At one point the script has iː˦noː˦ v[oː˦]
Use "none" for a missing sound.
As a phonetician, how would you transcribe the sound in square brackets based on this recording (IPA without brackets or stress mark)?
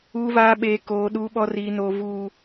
uː˦